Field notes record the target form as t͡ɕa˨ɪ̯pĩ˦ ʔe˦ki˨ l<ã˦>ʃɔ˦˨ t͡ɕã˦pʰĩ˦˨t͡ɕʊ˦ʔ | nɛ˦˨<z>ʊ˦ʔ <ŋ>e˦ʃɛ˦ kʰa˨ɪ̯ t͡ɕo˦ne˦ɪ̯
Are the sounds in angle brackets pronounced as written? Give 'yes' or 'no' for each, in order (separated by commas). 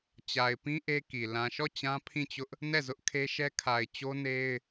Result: no, yes, no